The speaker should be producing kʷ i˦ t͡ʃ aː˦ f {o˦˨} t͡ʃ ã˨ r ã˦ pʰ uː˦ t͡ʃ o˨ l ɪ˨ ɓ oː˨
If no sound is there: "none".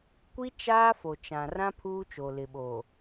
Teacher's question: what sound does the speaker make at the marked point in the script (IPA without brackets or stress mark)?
o˨